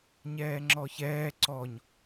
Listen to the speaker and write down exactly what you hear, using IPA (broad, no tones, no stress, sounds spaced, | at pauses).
ɲ ɛː ŋ͡ǁ ɔ ç ɛː ǀ ɔ ɲ